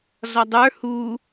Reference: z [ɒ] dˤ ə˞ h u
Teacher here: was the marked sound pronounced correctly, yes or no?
yes